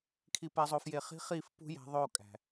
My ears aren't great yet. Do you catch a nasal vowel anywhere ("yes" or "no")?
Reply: no